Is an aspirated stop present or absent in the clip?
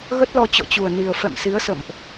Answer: absent